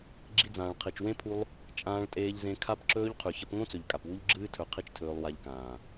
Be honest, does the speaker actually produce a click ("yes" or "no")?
yes